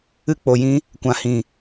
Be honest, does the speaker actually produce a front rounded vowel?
no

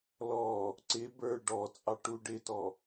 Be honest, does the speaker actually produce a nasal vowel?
no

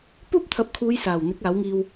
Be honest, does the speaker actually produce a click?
no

